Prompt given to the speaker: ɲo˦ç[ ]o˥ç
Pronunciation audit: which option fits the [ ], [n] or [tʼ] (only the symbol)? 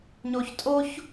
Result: tʼ